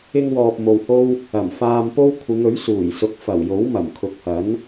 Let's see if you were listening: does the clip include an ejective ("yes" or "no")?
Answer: no